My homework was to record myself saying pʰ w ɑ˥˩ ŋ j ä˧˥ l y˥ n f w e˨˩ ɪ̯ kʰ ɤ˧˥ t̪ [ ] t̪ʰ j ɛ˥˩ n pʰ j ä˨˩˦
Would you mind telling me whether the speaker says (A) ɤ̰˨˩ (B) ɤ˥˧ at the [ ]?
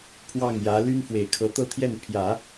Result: B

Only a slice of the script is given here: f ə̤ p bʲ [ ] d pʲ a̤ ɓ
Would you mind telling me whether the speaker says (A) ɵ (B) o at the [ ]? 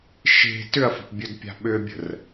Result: A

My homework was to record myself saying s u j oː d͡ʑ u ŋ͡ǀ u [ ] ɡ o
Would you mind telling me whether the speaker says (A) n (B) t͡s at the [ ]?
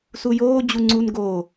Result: A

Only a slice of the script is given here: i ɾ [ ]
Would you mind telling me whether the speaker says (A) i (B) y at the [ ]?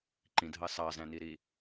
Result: A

